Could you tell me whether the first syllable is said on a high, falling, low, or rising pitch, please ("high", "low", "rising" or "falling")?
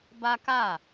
high